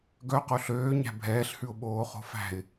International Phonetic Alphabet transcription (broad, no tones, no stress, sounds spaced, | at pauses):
ɡ œ q o ɬ øː ɲ æ̤ bʱ ɛː ɬ h ʉ ʊ̯ ɓ oː χ o̤ f æ̤ ɪ̯